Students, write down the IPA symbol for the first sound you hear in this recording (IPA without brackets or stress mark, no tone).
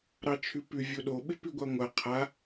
ɾ